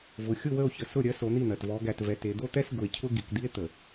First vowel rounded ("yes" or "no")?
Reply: yes